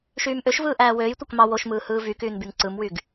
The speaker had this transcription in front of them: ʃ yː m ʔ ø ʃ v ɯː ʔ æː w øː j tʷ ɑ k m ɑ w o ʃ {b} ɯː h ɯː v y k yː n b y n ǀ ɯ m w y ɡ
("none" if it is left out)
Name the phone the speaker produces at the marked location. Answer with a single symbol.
m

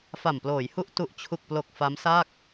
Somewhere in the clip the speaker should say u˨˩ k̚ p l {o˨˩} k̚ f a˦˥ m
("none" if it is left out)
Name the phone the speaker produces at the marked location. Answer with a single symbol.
o˨˩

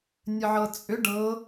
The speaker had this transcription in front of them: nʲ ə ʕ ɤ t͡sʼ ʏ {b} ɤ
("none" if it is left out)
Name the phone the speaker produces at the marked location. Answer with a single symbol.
ɖ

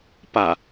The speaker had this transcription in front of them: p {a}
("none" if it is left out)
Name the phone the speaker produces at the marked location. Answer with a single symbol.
a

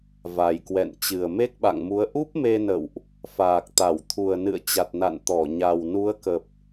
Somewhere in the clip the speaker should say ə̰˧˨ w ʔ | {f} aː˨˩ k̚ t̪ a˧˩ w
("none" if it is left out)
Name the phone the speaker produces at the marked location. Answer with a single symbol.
f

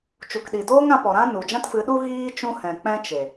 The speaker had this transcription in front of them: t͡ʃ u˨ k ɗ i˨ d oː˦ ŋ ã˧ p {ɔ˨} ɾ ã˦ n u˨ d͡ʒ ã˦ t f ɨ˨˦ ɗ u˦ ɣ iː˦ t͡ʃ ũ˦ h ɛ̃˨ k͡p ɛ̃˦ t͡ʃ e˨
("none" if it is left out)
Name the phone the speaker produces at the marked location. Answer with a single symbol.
ɔ˨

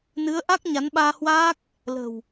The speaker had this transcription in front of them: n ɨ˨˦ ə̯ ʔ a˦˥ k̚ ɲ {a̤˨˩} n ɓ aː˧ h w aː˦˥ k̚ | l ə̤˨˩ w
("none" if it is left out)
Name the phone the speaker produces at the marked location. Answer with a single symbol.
a˨˦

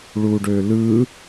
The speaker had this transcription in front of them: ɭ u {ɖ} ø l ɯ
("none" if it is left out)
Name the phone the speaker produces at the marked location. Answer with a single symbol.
ɖ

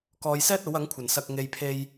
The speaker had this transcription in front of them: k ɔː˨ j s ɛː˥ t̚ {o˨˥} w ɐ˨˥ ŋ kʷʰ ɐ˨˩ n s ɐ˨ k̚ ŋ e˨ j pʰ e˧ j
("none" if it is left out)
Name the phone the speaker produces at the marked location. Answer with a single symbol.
o˨˥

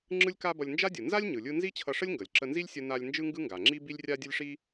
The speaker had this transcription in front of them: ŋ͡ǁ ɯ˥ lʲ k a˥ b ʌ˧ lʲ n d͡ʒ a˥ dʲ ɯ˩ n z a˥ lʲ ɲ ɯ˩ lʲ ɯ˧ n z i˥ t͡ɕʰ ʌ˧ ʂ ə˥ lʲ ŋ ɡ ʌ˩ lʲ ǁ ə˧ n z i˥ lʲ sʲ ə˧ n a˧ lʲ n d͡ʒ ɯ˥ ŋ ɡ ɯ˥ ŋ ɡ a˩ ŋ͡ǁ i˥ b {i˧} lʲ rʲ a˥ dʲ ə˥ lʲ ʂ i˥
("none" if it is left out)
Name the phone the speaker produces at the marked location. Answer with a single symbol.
i˥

